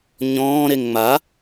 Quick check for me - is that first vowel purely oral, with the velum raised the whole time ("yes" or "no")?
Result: no